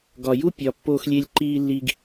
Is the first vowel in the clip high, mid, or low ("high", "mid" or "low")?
low